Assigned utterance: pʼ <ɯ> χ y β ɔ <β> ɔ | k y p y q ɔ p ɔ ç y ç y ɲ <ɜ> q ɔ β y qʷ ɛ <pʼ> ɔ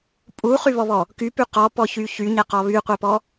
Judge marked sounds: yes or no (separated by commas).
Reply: no, yes, no, no